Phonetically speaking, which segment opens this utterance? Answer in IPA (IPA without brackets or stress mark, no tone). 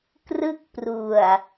k